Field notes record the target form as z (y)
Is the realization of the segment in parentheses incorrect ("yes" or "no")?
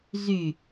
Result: no